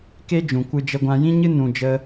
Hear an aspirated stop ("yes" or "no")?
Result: no